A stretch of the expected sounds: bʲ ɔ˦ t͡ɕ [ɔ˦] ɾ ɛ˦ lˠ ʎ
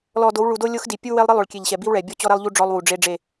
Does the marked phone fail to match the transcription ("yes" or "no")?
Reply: no